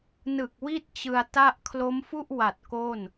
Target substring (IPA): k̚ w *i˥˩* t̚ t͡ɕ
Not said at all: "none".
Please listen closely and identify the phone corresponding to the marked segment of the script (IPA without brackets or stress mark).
i˥˩